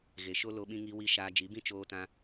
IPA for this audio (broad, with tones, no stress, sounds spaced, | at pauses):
ɣ e˨ ʃ o˦ l o˧ ɓ ĩ˧ ŋ i˧ w i˧ ʃ aː˧ d͡ʒ i˨˦ b ĩ˦ t͡ʃ oː˧ t ã˧